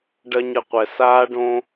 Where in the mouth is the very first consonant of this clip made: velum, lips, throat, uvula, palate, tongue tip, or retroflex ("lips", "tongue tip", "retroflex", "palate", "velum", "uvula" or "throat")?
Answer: retroflex